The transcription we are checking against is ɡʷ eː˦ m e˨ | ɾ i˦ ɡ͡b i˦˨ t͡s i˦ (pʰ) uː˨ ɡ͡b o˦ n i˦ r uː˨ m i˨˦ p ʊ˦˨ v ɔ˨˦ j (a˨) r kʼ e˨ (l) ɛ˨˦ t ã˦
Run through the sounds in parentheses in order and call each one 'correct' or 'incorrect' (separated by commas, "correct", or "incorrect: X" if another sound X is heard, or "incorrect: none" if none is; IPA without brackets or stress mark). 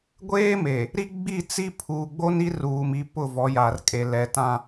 correct, correct, correct